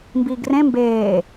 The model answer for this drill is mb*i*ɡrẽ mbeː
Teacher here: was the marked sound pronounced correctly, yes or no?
no